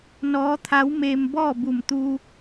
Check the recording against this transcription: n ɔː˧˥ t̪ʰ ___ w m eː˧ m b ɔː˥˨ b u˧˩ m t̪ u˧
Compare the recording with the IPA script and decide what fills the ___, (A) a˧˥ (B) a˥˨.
A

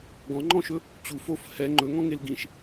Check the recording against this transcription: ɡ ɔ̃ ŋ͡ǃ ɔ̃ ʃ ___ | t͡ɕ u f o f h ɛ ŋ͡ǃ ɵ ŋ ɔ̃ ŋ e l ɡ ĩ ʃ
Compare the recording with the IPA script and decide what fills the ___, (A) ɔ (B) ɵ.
B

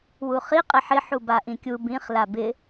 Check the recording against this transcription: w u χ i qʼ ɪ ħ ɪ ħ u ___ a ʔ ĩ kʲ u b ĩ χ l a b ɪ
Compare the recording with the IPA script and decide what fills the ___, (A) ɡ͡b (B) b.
B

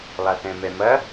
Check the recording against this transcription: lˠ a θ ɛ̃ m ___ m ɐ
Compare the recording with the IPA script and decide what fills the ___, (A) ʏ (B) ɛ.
B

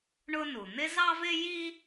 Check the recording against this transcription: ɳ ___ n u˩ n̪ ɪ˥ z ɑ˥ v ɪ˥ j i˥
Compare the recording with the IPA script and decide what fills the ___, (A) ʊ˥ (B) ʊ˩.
A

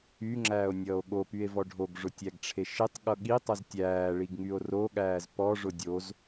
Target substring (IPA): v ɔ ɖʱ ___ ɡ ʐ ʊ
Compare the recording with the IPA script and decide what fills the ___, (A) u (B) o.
B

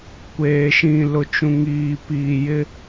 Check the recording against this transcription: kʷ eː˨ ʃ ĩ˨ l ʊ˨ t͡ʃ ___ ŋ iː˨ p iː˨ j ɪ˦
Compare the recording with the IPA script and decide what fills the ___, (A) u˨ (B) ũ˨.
B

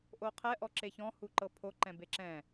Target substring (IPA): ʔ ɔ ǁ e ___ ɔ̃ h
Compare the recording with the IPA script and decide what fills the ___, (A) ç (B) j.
A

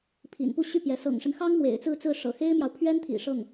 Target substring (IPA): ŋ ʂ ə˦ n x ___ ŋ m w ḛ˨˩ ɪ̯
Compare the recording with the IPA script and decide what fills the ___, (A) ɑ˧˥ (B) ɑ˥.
B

